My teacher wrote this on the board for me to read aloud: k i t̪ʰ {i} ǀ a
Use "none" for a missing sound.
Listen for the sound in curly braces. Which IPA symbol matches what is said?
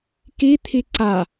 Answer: i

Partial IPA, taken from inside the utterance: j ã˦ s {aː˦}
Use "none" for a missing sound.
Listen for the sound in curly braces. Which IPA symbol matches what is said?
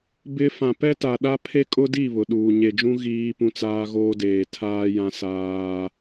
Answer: aː˦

